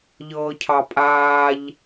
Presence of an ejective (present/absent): present